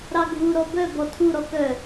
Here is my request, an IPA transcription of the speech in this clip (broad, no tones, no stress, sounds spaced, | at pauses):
ɾ ɑ ɡʱ u ɾ ɔ b œ b ɔ tʰ u ɾ ɔ k œ